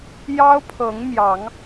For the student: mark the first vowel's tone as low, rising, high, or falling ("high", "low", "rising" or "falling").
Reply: high